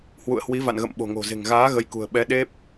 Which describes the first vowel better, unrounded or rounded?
rounded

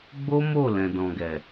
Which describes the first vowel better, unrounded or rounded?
rounded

